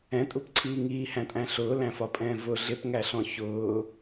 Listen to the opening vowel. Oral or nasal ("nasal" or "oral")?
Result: nasal